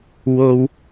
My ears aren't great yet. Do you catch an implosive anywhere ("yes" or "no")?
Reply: no